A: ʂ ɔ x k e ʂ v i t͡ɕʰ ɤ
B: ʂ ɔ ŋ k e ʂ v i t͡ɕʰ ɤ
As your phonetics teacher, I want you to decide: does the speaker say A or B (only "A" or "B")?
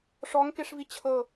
B